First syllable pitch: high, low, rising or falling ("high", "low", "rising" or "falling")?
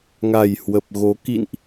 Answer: low